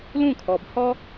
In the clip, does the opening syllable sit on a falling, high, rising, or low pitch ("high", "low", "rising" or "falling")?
falling